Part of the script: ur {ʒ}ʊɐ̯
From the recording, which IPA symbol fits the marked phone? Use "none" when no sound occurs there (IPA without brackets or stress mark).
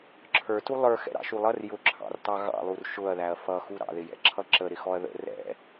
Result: ʃ